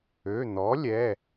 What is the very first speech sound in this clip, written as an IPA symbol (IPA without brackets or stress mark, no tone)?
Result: ø